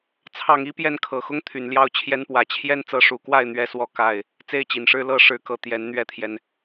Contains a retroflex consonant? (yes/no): yes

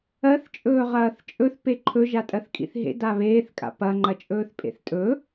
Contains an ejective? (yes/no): yes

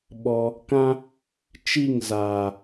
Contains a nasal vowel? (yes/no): yes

